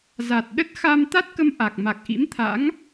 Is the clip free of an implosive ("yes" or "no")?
no